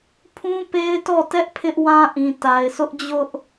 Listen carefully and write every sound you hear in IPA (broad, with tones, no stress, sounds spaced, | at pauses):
pʰ ũ˦ p e˦ ɪ̯ t ɔ˦˨ t ɛ˦ ʔ pʰ ɪ˦ ʔ w ã˦ ʔ ĩ˨ t a˨ ɪ̯ s ʊ˦ ʔ d͡ʑ ʊ˦ ʔ